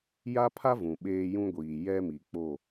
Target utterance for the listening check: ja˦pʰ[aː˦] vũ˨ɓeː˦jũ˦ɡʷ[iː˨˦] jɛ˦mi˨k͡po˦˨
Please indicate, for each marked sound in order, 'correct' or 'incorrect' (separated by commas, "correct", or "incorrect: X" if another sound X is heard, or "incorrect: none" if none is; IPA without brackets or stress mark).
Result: incorrect: a˦, incorrect: iː˨